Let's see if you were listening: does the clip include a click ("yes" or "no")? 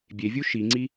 yes